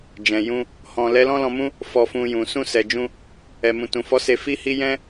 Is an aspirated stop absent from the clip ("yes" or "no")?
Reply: yes